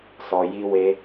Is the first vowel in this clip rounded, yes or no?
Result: yes